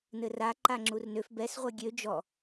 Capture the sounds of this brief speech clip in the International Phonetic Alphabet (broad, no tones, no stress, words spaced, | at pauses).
nɘra ǃaŋ͡ǁurnøf bɛs ʁʷɘɡʲø d͡ʒɔ